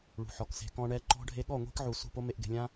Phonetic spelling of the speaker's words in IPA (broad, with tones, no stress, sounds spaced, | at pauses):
ɭ ṳ˨ ħ ɔ˨ k s e̤˨ k ɔ̃˧ ɳ ɛ˧ ǃ ɔ̤˧ ɖʱ e˧ ɠ ɔ˦˨ ŋʷ i̤˦ k ʕ u˨ s ṳ˦˨ p o˦ m e˧ ʔ ɡ e̤˨ lʲ ã˦